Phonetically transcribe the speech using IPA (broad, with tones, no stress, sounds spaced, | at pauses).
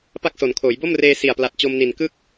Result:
p a˥˩ k̚ s o˩˦ n kʰ oː˩˦ j b o˥˩ m r eː˧ s i˨˩ a̯ p l a˨˩ t̚ t͡ɕ o˧ m n i˨˩ n k ɯ˥˩ k̚